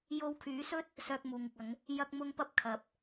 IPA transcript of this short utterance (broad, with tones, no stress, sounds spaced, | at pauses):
j o˧ w kʰ yː˨˥ s ɵ˥ t̚ | s œː˧ k̚ m uː˨ ŋ ɪ˨ k̚ ɐ˨˧ ŋ | j ɐ˥ k̚ m ʊ˥ ŋ p ɐ˥ p̚ kʰ ɐ˨˥ p̚